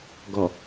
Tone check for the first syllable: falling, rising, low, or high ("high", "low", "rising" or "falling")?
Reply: low